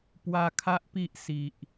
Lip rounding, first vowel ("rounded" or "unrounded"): unrounded